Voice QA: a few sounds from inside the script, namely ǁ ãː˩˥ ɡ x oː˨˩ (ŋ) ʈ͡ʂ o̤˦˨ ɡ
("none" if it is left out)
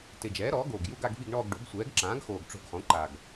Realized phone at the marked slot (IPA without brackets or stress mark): ɡ